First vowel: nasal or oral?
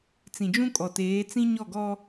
nasal